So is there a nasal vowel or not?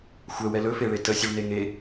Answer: no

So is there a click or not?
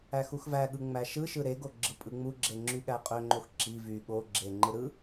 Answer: yes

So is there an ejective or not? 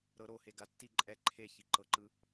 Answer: yes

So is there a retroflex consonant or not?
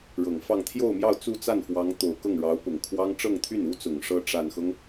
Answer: yes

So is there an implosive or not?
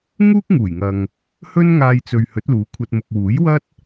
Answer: no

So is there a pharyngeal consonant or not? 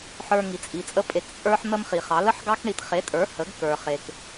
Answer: yes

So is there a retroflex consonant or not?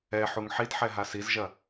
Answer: no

